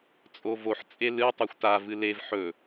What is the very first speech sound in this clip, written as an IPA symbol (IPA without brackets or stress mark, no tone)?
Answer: t͡sʼ